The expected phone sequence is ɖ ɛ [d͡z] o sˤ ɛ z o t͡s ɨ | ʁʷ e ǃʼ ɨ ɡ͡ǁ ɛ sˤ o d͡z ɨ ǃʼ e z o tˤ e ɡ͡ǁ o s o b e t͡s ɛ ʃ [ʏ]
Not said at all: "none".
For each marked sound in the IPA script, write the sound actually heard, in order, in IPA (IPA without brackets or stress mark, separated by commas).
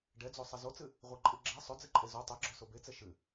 d͡z, ɨ